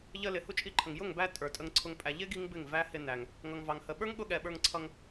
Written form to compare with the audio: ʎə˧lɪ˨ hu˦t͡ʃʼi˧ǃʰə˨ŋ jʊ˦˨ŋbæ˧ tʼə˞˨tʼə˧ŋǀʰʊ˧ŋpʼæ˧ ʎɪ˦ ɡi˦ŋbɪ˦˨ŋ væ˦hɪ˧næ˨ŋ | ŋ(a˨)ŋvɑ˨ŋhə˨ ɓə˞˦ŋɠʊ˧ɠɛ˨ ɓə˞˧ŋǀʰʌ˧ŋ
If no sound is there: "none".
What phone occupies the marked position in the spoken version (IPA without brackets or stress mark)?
ʌ˨